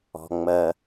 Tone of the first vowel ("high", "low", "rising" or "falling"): low